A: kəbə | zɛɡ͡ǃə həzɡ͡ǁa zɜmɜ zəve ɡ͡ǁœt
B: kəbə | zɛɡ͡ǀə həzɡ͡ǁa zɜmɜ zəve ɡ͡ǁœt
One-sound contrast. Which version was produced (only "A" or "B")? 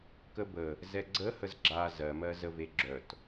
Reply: B